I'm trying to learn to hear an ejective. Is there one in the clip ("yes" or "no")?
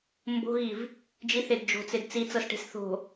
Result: no